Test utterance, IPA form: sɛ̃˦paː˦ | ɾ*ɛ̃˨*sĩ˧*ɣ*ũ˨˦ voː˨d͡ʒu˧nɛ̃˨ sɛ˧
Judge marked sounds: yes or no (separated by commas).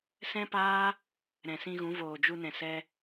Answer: yes, yes